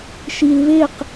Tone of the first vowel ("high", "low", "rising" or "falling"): low